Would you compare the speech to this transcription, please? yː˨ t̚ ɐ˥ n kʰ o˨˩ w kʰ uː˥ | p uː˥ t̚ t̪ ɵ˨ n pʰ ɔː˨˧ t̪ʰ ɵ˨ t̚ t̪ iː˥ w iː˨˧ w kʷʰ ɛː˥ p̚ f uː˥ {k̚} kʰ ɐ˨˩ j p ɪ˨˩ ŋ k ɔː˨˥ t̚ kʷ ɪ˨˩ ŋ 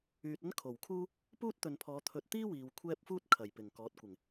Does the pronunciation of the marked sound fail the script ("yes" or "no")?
yes